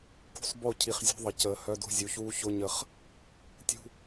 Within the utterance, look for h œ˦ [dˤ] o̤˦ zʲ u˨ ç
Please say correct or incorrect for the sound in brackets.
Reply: incorrect